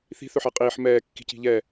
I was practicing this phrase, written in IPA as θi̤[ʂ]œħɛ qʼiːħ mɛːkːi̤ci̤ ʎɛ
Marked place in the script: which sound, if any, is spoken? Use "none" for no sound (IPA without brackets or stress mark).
θ